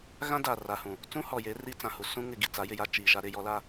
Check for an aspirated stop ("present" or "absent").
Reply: absent